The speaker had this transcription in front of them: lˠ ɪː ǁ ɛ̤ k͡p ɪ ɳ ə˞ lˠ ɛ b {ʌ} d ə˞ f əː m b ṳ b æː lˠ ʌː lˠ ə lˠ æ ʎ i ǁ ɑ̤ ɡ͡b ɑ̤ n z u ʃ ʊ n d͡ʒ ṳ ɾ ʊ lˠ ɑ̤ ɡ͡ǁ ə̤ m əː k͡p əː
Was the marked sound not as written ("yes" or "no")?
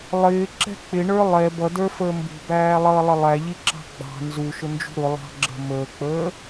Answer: no